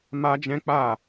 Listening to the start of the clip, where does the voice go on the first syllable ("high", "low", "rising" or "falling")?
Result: high